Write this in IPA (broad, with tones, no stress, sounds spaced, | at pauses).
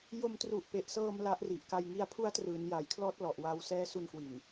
j o˧ m t r u˨˩ ʔ p e˨˩ ʔ s ɤː˧ m l a˦˥ ʔ r i˨˩ ʔ k a˧ j ŋ i˧ a̯ pʰ u˦˥ a̯ t r ɯː˩˦ n j a˨˩ j kʰ l ɔː˦˥ t̚ l ɔ˨˩ ʔ w aː˧ w s ɛː˦˥ s u˧ n k w i˨˩ n